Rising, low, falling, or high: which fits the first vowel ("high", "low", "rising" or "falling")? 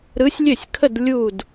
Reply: rising